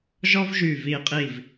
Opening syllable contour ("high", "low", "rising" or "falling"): high